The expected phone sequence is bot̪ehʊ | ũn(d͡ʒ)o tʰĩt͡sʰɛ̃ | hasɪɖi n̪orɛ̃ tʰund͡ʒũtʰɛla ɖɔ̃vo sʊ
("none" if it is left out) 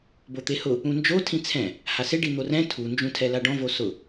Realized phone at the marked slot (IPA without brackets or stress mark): d͡ʒ